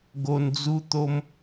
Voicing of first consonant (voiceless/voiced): voiced